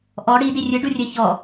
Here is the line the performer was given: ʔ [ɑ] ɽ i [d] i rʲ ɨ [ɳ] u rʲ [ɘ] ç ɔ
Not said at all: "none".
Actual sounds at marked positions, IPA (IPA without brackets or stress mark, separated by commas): ɔ, d, ɖ, ɘ